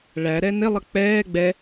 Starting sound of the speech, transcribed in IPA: ɭ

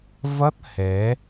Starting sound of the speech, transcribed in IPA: v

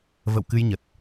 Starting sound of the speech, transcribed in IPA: v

